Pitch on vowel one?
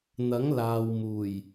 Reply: rising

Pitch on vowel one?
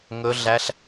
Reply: high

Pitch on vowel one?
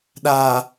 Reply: low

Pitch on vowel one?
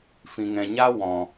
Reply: low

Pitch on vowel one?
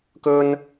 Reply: high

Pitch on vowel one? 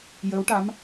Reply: rising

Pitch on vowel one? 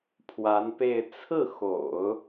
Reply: rising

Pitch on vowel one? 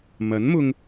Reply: rising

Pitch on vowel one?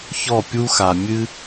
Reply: falling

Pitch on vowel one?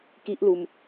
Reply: high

